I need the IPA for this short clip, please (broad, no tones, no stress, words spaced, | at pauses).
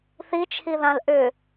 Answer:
θit͡ʃʰiðãl ʔʏ